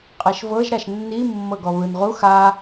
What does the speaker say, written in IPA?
qʼ ɛ ʃ v ɤ ʒ ɾ a ʃ nː i mː ɤ ɡ ɔ β ɯ n ʁ u x a

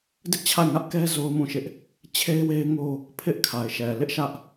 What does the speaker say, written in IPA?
d ɪ˦ ʔ t͡ɕʰ a˦˨ ɪ̯ ŋ ä˦ ʔ k ɛ˦ z o˦ ʊ̯ m ũ˦˨ ʃ ɪ˦ ʔ | t͡ɕʰ e˦ ɪ̯ w e˦ ɪ̯ ŋ o˦ | pʰ ɪ˦ ʔ kʰ a˨ ɪ̯ ʃ ɛ˨ l ɪ˦ ʔ ʃ ä˦ ʔ

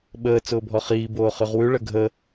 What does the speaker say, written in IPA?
ɓ əː t͡s ʊː bʱ ɔ χ iː b oː χ ʉ ʁ w ʉ ɭ ə ɡʱ ə

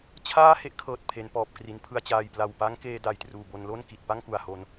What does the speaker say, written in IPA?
t͡ɕʰ aː˥˩ h e˥˩ ʔ kʰ ɤː˨˩ t̚ pʰ e˩˦ n p ɔː˨˩ p̚ k r i˩˦ n pʰ ɯ˨˩ a̯ t͡ɕ aː˨˩ j p l a˨˩ w p a˦˥ ŋ k eː˧ d a˨˩ j t r uː˨˩ b o˧ n l o˥˩ n k i˨˩ t̚ p a˥˩ ŋ k u˨˩ a̯ h o˧ n

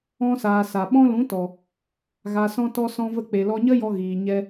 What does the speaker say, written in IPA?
ɔ̃˧ s aː˨ s a˨ ɓ ɔ̃˧ l ũ˨˦ t ɔ˨ | ɣ a˨ s ɔ̃˧ t ɔ˧ s ɔ̃˧ v ə˧ k͡p e˨ l ɔ˧ ɲ ə˦ j ɔ˧ ɣ iː˨ ɲ ɛ˧

